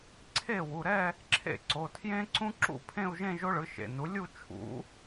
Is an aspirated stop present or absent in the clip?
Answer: present